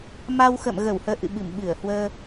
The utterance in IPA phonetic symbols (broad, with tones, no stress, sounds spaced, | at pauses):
m a˧ w x ə̰˧˨ m ɣ ə˧˩ w h əː˧ ʔ ɨ̰˧˨ ɓ ɨ˧˩ m ɓ ɨ˧˩ ə̯ h w əː˧